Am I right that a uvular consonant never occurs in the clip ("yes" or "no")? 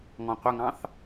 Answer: no